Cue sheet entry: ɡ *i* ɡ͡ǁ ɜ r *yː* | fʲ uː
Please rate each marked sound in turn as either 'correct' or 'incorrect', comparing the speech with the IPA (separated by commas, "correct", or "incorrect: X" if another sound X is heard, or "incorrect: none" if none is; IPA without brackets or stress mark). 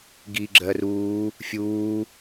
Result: correct, incorrect: uː